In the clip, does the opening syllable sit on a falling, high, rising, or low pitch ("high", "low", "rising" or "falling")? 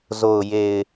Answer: low